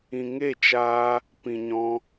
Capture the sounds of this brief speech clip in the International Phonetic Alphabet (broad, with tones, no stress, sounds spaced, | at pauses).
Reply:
ĩ˨ ŋ e˦˨ t͡ʃ aː˧ | p ĩ˨ ɲ ɔ̃˧